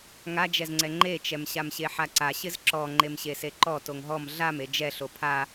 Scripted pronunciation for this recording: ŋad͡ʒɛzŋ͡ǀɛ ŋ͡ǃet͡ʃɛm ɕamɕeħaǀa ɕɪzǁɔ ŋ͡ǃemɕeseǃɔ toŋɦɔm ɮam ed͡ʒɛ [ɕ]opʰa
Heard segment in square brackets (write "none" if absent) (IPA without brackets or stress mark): ɬ